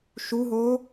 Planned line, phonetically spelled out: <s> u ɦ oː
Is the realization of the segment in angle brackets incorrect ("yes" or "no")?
yes